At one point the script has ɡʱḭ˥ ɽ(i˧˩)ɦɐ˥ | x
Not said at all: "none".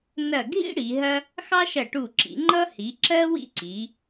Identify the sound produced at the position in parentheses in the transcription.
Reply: i˩˧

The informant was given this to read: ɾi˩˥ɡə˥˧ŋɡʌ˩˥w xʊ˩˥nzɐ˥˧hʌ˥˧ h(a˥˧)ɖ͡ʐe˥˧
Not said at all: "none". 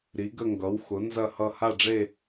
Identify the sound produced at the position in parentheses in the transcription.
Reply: a˥˧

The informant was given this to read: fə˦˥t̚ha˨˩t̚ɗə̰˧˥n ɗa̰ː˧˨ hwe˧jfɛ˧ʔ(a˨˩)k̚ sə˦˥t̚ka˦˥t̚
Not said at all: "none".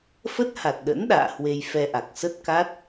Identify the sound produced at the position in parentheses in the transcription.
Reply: a˨˩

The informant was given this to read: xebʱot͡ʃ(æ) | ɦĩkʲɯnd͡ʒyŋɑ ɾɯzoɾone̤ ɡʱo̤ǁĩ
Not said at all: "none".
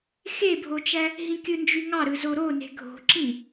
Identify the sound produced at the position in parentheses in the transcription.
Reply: æ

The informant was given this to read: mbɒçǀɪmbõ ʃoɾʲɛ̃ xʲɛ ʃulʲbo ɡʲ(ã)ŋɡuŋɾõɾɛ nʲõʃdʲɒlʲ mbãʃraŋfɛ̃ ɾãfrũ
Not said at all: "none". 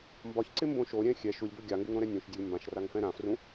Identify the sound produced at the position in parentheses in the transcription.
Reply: a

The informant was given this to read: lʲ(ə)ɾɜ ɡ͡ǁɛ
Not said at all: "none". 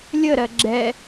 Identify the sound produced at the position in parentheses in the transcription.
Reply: ə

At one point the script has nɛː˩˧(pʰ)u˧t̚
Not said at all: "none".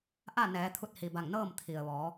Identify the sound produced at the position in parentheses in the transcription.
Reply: t̪ʰ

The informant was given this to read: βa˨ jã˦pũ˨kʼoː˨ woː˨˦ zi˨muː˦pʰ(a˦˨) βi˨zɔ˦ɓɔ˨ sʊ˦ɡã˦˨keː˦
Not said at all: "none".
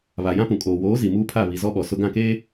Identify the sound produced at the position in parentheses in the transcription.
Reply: a˦˨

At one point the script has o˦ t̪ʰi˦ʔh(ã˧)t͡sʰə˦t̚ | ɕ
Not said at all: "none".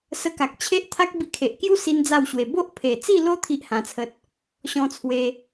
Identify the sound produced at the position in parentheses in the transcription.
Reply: ã˧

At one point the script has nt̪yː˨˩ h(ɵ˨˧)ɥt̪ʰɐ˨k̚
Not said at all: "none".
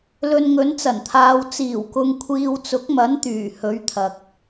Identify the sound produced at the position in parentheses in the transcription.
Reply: ɵ˨˧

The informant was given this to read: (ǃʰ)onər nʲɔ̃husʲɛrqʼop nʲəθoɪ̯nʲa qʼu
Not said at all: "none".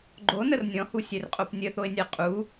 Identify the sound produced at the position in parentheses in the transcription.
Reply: ɡ͡ǃ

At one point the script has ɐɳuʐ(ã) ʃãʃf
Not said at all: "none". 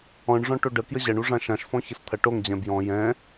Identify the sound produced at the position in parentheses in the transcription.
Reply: ã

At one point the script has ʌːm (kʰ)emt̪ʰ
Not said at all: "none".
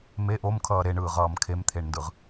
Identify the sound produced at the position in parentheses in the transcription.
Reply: kʰ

